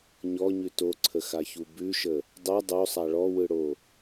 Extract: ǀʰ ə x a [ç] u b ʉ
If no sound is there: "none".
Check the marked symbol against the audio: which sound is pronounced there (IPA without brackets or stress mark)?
ç